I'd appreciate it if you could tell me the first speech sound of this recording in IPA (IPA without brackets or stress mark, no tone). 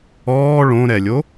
ɔː